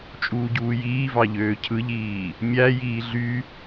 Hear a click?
no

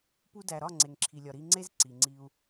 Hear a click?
yes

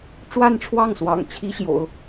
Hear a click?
no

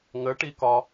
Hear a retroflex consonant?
yes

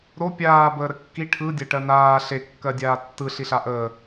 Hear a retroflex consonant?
yes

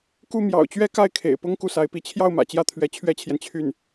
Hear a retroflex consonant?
no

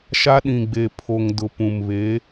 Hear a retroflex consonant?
no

